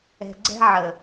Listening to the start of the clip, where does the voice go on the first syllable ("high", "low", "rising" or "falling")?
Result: low